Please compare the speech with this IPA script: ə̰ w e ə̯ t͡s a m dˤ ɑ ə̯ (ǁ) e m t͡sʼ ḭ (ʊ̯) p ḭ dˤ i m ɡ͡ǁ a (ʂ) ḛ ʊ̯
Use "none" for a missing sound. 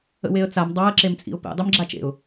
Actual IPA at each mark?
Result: ǁ, ʊ̯, t͡ʃ

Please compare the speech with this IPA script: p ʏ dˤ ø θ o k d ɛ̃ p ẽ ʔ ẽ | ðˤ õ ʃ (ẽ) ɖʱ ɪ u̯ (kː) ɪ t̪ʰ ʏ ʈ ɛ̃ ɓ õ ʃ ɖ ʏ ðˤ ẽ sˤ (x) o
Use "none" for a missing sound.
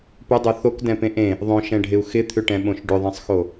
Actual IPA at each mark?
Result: ɛ̃, x, x

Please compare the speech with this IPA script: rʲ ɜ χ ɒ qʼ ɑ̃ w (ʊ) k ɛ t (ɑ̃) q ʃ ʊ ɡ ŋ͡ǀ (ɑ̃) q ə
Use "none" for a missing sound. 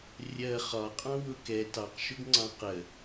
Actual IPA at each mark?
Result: ʊ, ɑ, ɑ̃

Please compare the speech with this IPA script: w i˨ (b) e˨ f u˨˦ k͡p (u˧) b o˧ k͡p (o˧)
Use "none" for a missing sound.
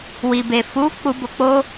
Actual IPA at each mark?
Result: b, u˧, o˦

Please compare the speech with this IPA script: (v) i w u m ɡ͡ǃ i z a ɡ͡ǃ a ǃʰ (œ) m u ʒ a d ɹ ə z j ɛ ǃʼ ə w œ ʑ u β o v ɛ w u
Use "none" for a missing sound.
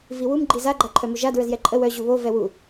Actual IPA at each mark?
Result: v, œ

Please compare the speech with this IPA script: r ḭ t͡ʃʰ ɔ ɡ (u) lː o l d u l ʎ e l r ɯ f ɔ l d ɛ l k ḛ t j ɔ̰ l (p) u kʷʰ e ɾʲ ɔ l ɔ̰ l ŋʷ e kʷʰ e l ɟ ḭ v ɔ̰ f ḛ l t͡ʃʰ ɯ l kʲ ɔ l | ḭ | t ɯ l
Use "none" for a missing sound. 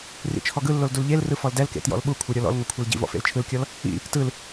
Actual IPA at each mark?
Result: ɯ, ɓ

